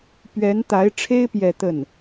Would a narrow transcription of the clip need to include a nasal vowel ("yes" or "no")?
no